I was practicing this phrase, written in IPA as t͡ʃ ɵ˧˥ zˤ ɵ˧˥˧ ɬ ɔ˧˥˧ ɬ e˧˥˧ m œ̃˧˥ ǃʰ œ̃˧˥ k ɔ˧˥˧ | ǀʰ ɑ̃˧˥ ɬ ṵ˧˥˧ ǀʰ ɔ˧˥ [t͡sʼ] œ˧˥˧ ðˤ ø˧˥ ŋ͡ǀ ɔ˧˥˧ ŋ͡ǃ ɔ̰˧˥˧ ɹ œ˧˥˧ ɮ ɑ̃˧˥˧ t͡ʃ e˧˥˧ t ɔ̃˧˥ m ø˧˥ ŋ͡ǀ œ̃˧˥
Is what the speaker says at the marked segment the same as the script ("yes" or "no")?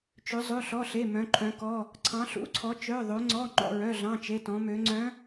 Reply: no